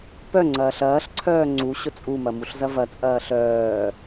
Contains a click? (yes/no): yes